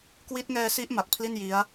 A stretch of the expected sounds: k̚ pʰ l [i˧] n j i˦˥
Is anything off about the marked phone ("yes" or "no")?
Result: yes